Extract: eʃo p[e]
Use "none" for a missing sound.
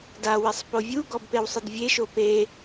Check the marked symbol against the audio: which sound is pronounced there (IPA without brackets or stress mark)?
e